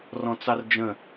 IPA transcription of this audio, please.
rɔ̃t͡sɑrd͡ʒə̃

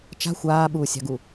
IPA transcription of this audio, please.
t͡ʃa̤ xʷaːɓuːsʲɑ̤ɡu

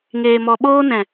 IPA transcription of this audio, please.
ŋeː˨mɔ˨ɓoː˧nɛ̃˨

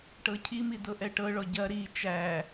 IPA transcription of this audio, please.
ʈɤcʰimi dɤʔɛʈɤɭɔ ɟɐ ɾi t͡ʃæ

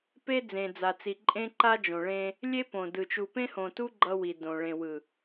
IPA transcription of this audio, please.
pe˦d͡zẽ˨d͡za˨t͡si˨ ǃʼẽ˦ ǃa˦d͡ʒõ˨ɭẽ˦ | lʲe˦ põ˨dɯ˨ t͡ʃu˨pẽ˦hõ˨tu˦ ɡ͡ǃʌ˦wi˨ dõ˨ ɭẽ˨wɯ˨

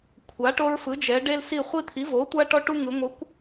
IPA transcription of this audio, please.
kʷʰa˩˥ʈo˦ɹfɯ˩˥ d͡ʒɛ˩˧ɖe˦l si˦˨ χʷi˦t̪ʰi˩˥vo˩˥tʷa˦ ʈɔ˦ʈu˦ŋɯ˩˧ ŋʷɯ˩˥kʷ

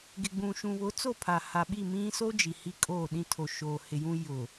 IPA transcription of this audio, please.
ɡɪ˨ɡ͡bũ˨ʃũ˨βʊ˨˦ t͡so˦˨pʰa˨ha˨ɓi˦˨ mĩ˦so˦ d͡ʒi˨hi˦kʼoː˦˨ɗĩ˦ tʰo˨ʃoː˨hɪ˨jũ˦ jʊ˨

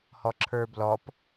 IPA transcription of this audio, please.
hɔǁʰə˞blɔp

